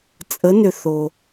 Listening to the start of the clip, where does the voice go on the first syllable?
rising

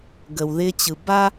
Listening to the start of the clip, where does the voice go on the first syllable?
low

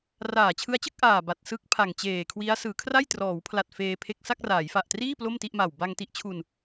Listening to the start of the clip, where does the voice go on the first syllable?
low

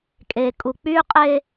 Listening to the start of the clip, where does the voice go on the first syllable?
low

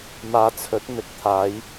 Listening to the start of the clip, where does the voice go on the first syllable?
low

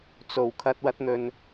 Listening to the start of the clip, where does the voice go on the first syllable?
low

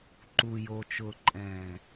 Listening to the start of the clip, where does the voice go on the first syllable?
low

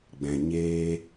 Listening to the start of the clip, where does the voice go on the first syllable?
low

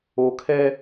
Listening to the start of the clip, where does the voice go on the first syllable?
low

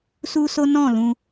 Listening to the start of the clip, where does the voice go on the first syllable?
high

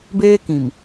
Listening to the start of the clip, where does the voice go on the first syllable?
high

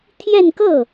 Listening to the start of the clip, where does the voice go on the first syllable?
falling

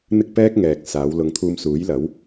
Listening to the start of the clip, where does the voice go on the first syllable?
high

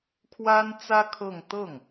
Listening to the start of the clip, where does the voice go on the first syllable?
high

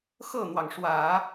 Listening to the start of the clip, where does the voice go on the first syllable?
falling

